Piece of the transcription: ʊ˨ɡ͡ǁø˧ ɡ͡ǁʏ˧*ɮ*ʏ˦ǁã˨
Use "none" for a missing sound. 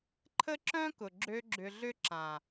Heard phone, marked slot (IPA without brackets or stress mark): ɮ